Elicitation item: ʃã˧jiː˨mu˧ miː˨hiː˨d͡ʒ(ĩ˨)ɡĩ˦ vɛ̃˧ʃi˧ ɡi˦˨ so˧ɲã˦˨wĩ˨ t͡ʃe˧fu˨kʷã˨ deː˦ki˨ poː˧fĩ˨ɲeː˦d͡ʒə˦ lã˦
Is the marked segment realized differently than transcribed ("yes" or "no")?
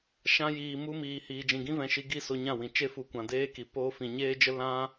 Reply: no